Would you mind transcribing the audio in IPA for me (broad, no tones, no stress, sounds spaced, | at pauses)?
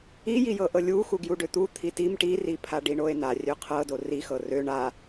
i j i j ɤ ʔ ɤ lʲ u x u ɡ j u ɖ ø t̪ u t̪ʰ i t i m ʈ i r i pʰ a ɖ i ɳ o e̯ n a rʲ ø qʰ ɤ d o r i x ɤ r ø ɳ a